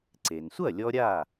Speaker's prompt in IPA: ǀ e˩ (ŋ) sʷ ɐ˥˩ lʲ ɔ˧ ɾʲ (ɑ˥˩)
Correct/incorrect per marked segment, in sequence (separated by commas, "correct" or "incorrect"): incorrect, incorrect